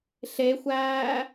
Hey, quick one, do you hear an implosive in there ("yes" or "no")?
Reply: no